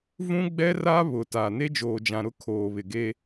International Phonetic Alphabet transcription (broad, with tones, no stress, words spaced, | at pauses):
vũ˦ɡ͡bɛ˦ra˦ βʊ˨ta˨ ne˦d͡ʒoː˨d͡ʒã˨ɾʊ˦ kʰoː˨βɪ˨ɡe˦